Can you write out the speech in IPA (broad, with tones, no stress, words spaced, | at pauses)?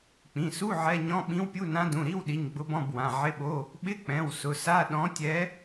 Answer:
k͡pĩ˩˧˩su˧˥˧ ʕɛ˧˥˧ ɲɔ̃˧˥˧ɓĩ˧˥wpʲu˧˥˧nã˧˥ dũ˩˧˩ɾi˧˥˧wɗi˩˧˩ɲ ɡ͡bʊ˧˥bɔ̃˧˥˧bwã˩˧˩ ʕɪ˧˥˧ɓo˧˥˧ | ɓɪ˧˥˧k͡pɛ̃˩˧˩w sʊ˩˧˩sa˧˥˧ ɗɔ̃˧˥tʲɛ˧˥